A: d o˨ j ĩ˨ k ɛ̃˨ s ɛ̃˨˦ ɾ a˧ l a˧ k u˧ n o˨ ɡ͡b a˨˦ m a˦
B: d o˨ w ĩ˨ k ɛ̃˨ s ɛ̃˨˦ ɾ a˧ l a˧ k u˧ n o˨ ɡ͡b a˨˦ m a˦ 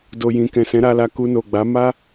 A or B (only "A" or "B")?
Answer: A